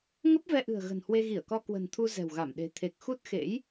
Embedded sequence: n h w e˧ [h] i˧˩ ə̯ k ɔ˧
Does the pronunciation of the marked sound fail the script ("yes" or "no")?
yes